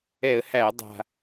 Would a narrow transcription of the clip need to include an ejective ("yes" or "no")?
no